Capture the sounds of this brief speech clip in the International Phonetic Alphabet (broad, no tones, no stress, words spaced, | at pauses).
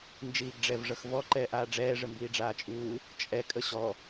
nd͡ʒiːɡɖ͡ʐɛvʐʌxvɔ ǃɛːʔaːɖ͡ʐɛː ʐəmbiːɖ͡ʐaːt͡ʃʼuː | t͡ʃʼɛ kʼəɕɔ